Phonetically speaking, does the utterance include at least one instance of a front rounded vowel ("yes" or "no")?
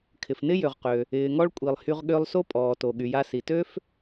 yes